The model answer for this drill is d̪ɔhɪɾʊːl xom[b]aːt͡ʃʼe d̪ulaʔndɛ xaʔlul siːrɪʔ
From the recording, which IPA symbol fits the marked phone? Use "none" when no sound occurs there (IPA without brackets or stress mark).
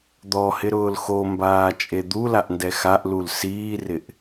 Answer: b